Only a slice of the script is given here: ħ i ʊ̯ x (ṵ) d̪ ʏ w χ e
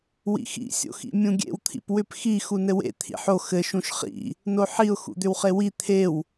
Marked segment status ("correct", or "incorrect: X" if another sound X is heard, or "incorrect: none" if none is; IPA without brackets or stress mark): correct